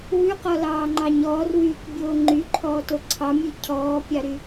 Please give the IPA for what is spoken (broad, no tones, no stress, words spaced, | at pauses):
wʉqɔlɑːŋ͡ǃɑɲ ɔːrwyːkbʲoː ŋ͡ǃyǃʰɔːto ǀʰɑmʲʉ cʰɔːpʲɑɾy